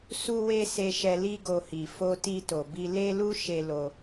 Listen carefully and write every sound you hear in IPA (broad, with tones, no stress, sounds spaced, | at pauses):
s u˦ w e˦ s e˧ ʃ ɛ˧ l i˦ ɡ o˧ h i˨ f o˧ t i˧ t o˨ b i˧ l e˦ l u˦ ʃ e˧ l o˧